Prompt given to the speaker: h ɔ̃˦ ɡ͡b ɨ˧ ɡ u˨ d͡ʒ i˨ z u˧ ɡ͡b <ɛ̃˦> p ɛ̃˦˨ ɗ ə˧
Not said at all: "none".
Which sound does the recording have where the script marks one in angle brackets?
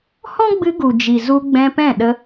ɛ̃˧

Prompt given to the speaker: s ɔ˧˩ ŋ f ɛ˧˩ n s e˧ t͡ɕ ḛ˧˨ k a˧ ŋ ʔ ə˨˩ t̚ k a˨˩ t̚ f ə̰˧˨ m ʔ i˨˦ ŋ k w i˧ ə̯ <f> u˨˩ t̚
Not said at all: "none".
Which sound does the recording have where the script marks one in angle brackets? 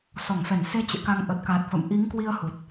h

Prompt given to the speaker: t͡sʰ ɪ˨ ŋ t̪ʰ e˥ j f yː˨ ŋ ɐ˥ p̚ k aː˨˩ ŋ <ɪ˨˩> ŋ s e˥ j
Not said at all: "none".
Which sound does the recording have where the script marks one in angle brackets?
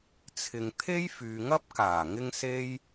ɪ˥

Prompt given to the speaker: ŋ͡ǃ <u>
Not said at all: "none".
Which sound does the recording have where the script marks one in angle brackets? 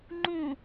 ũ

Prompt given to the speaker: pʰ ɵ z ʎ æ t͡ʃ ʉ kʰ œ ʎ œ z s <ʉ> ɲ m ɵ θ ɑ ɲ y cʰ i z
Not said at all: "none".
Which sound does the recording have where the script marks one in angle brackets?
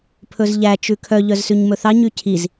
ʉ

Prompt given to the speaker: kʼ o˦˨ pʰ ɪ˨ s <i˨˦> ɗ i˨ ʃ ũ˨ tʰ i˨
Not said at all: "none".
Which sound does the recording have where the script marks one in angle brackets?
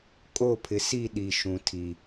i˦˨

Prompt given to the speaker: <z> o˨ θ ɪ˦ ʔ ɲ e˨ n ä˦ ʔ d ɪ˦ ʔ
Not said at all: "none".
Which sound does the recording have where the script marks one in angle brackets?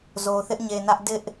z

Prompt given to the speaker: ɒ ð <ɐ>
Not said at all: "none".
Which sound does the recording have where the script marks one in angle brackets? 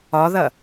ɐ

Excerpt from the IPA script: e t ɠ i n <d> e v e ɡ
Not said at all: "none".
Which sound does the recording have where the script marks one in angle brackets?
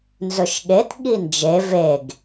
d͡ʒ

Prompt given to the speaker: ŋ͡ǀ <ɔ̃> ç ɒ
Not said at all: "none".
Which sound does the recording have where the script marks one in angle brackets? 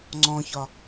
ɔ̃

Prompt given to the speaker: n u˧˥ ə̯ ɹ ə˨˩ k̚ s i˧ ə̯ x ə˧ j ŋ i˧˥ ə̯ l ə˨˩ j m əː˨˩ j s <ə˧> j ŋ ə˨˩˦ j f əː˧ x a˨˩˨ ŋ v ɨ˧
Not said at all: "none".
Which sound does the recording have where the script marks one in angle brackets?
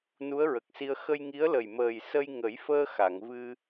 ə˧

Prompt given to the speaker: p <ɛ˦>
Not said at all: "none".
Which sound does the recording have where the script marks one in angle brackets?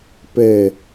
ɛ˨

